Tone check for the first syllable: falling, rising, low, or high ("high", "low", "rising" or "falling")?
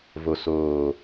low